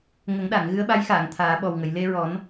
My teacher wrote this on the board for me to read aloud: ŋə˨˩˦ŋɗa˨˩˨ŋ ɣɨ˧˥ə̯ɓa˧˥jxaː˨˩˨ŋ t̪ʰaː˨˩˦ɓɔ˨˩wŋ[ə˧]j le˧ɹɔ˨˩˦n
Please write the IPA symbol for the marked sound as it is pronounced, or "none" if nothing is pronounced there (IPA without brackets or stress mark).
ə˨˩˨